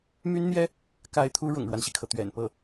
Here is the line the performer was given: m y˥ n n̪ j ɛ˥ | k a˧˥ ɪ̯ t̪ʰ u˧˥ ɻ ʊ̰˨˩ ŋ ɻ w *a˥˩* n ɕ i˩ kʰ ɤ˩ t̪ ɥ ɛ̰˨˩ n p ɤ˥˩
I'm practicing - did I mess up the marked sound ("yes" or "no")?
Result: yes